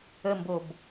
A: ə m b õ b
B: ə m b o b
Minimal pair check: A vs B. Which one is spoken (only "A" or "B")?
B